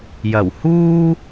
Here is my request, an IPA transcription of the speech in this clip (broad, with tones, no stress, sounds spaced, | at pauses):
j ɐ˨˩ w h uː˥